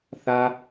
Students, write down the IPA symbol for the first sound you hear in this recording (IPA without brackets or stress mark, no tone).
θ